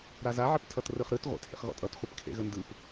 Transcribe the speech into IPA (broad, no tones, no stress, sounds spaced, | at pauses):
ɾ a z a ʕ ɘ p tʰ ʌ t r ɯ χ ɾ ɯ t ʁʷ ḛ t h ḛ χ ɣ ɔ̰ tʼ ʌ t χʷ ɘ p kʰ ḛ ɣ ə n d ɯ p